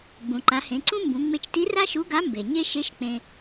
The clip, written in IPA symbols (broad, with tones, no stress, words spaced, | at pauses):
ɡ͡bũ˩ǃa˩˧hẽ˩˧ǀũ˥ mbũ˩˧ŋ͡me˧t͡ʃti˧˥ ra˥ʃu˧˥ɡa˧˥ mbe˩ ɲe˥ ʃe˧˥ʃ k͡pẽ˧